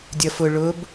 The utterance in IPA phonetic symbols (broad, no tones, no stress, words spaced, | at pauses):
dʲʌfʊ ɭʊb